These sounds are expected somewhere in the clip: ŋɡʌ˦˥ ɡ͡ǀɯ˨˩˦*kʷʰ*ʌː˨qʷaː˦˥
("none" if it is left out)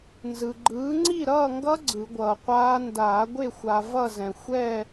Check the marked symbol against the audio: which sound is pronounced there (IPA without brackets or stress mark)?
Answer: ɡʷ